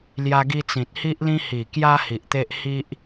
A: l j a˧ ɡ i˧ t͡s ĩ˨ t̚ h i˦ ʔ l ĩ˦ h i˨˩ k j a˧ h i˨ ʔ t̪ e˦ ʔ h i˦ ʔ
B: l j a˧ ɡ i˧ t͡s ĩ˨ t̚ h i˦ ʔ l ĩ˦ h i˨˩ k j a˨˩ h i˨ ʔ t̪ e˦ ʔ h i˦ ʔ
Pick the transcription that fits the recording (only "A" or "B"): A